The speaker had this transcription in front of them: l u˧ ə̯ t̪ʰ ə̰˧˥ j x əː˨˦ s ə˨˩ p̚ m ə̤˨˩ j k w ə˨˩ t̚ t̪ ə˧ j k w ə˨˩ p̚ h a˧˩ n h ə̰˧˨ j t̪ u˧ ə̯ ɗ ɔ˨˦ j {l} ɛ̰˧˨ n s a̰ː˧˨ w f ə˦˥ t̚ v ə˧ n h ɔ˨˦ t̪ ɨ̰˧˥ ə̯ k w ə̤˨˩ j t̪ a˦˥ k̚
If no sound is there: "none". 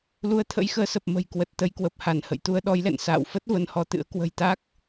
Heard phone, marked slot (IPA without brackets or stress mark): l